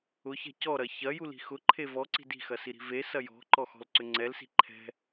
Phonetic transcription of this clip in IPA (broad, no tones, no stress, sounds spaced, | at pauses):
ʊ ç ɛ̤ c ɔ ɾ ɐ ç ɐ j u l i̤ x ʊ ǃʰ e v ɔ ǀ i̤ d i̤ x ɐ s i ɾ i̤ v e s ɐ j ɔ̤ ǃ ɔ x ɔ̤ l ǀ ʏ ŋ͡ǀ ɛ l s i̤ ǃʰ ɛ̤